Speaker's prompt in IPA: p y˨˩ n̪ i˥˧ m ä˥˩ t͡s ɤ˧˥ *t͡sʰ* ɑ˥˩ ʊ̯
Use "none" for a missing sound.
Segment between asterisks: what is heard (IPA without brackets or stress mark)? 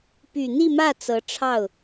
ʈ͡ʂʰ